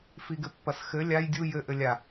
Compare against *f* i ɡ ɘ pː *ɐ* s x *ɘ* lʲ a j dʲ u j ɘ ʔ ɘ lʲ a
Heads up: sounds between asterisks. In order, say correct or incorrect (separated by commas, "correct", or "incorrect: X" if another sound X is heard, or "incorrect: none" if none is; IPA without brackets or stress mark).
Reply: correct, correct, correct